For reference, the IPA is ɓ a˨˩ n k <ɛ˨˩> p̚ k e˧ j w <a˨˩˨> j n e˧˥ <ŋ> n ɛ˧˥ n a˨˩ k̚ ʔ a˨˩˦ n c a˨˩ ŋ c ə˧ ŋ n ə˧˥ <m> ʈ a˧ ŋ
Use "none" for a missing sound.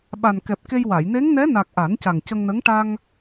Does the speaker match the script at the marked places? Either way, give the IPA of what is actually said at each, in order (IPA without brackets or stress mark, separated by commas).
ɛ˨˩, a˨˩˨, ŋ, ŋ